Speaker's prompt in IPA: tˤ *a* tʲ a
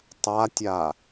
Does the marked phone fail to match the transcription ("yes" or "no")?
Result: no